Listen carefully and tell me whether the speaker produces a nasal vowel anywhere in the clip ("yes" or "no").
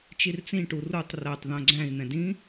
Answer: yes